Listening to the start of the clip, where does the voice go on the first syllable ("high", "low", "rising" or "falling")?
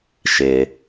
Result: low